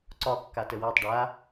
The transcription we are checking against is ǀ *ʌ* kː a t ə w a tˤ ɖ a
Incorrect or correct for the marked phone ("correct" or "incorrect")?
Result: incorrect